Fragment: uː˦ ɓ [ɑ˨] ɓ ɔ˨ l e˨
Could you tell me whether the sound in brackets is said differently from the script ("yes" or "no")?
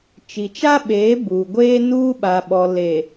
yes